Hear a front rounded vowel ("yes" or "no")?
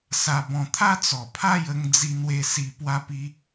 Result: no